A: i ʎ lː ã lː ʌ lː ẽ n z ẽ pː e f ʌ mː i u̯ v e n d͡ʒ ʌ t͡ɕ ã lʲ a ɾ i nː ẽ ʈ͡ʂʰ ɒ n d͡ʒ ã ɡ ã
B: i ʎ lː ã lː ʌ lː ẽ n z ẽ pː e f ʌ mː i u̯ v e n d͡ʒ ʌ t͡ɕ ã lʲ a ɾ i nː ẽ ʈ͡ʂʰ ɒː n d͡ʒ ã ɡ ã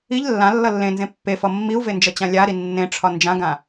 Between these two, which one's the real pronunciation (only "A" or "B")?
A